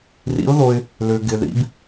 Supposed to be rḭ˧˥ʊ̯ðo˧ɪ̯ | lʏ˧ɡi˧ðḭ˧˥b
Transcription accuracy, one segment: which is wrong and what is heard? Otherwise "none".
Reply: i˧ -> ɪ˧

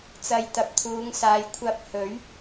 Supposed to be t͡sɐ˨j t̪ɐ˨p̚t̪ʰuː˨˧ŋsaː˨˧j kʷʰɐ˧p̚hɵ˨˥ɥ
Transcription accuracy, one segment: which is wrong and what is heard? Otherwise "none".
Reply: none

